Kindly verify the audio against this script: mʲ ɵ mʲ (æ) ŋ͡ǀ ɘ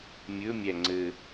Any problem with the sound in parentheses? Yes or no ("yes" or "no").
no